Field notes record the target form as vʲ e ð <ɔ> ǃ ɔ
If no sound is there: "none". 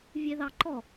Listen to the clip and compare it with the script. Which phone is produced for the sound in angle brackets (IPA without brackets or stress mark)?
ɑ